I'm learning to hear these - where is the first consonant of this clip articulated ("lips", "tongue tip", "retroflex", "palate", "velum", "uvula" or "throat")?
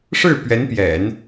retroflex